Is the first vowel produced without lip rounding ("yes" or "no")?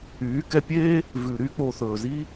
no